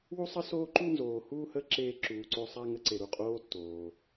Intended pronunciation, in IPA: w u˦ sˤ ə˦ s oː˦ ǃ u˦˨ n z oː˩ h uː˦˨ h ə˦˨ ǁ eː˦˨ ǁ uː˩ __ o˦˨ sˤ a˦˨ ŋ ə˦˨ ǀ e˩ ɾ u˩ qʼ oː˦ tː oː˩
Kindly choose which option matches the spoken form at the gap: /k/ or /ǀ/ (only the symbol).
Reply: ǀ